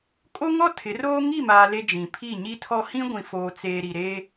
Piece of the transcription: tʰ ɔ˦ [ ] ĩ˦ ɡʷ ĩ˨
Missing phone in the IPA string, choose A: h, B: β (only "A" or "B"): A